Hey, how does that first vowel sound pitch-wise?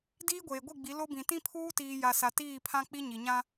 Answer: high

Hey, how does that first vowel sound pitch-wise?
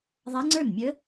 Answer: rising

